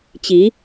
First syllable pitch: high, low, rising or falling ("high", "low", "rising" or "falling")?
rising